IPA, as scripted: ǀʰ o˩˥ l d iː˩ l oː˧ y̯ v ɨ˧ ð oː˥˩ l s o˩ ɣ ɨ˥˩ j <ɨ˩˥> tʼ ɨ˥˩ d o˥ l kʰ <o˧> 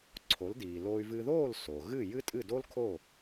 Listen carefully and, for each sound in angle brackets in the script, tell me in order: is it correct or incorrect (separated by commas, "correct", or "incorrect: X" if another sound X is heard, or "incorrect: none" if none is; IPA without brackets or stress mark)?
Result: incorrect: ɨ˥, incorrect: o˥˩